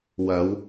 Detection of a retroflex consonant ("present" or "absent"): absent